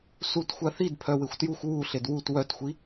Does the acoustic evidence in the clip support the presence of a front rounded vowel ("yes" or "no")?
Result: yes